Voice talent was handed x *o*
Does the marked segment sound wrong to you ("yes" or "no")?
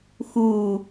yes